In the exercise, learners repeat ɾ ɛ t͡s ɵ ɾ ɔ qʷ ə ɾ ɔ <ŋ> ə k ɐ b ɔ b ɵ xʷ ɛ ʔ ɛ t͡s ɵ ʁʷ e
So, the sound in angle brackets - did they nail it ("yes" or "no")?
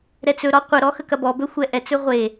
no